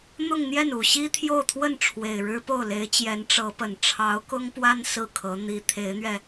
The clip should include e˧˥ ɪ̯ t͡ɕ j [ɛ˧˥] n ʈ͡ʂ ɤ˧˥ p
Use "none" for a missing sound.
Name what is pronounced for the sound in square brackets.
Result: ɛ˧˥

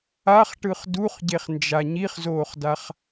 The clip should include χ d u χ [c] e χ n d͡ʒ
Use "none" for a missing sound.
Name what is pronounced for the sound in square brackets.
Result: ɟ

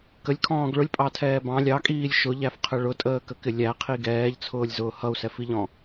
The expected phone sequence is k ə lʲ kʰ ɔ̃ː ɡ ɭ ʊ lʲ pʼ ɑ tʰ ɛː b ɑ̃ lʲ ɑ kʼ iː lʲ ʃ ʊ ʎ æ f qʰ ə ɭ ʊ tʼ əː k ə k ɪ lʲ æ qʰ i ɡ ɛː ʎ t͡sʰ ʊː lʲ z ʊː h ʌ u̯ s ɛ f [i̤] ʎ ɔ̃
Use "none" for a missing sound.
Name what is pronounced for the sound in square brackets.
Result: i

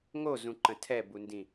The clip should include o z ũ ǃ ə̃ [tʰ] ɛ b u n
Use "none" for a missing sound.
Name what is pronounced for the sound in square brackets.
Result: tʰ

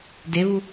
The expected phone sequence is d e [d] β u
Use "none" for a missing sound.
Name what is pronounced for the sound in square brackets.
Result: none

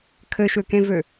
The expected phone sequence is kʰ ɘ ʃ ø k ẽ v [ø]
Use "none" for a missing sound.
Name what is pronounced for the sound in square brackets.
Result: ø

